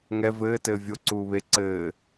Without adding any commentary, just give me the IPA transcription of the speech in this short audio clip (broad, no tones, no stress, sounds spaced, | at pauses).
ŋ ɛ v ɘː t ɘː vʲ o ǀ uː β e ǀ ɘː